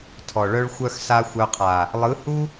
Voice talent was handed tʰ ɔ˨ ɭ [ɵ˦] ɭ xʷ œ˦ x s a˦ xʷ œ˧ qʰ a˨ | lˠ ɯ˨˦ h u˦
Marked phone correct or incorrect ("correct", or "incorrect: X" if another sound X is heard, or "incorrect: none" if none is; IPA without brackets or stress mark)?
incorrect: œ˦